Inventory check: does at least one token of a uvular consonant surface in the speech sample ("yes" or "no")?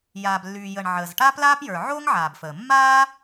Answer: no